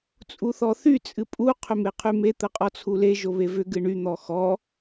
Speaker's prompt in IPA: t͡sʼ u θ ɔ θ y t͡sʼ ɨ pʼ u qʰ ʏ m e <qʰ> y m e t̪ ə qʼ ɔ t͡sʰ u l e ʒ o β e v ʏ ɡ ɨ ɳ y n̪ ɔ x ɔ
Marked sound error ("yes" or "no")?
no